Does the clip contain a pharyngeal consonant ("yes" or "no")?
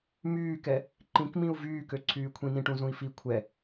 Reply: no